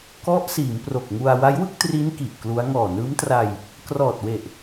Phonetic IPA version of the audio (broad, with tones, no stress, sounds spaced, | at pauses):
k ɔ˦˥ ʔ s iː˩˦ m p r o˨˩ k̚ ŋ u˧ a̯ w a˦˥ j w ɯ˥˩ k̚ t r i˦˥ n k i˨˩ ʔ k l u˦˥ a̯ ŋ ɔː˨˩ n ɯː˦˥ m t r a˧ j | k r ɔː˨˩ t̚ w e˨˩ ʔ